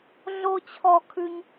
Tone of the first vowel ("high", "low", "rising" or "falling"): high